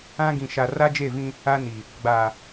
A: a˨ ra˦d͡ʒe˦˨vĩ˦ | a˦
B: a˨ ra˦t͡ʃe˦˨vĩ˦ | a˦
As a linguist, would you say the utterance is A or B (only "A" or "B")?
A